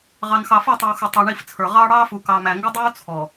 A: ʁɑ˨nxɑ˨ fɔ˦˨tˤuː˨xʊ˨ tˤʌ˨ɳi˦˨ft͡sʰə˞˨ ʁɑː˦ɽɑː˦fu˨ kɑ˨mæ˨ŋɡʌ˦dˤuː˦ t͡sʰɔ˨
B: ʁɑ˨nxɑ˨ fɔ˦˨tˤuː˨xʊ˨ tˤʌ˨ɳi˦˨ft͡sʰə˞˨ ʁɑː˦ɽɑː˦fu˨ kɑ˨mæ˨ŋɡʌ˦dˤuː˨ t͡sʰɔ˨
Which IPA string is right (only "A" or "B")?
A